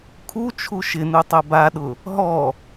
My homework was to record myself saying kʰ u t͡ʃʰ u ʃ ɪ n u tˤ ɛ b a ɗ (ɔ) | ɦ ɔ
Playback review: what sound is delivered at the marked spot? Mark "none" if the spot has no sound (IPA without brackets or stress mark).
ʊ